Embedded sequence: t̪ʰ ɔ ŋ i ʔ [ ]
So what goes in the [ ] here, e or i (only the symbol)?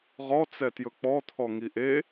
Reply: e